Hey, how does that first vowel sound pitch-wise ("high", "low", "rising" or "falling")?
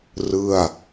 falling